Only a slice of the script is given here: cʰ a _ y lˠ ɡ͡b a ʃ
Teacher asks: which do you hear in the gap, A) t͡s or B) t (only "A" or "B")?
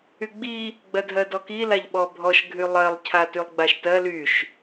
B